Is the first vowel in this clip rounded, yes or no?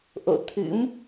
yes